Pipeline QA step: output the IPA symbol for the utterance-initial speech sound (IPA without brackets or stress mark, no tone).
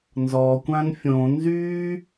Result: n